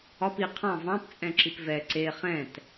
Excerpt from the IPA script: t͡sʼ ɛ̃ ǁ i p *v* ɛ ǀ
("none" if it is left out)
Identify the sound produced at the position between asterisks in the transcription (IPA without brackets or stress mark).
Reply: v